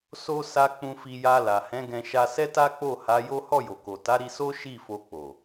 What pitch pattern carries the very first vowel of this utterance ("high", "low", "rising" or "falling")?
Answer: high